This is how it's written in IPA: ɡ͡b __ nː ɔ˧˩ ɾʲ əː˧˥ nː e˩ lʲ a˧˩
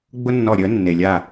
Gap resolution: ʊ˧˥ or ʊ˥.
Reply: ʊ˥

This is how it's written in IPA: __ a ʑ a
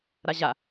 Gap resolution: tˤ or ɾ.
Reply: ɾ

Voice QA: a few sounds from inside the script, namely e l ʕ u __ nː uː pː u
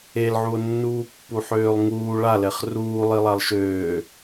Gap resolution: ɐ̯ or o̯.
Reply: o̯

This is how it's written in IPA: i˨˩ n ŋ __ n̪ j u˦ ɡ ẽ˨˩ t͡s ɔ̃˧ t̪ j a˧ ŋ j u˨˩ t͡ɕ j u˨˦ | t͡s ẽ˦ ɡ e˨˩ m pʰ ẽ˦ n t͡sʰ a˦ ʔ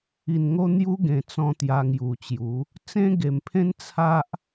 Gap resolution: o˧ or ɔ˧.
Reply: o˧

